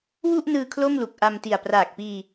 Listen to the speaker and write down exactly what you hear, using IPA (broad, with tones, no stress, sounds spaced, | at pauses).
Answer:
w u˥˩ ʔ n ɯː˧ kʰ l o˥˩ m l u˨˩ k̚ ʔ a˧ m t i˨˩ a̯ p r aː˨˩ k̚ p iː˧